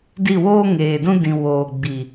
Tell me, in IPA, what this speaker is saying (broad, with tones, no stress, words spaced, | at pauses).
di˦˨woː˦ ŋeː˨dũ˦dĩ˨ woː˨ ɡ͡bi˨